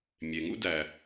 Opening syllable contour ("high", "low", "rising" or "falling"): low